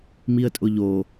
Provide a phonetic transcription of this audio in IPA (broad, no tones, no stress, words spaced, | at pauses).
miə̯tʼʊʎo